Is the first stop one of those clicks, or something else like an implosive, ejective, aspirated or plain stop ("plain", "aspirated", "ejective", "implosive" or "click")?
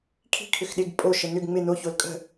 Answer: aspirated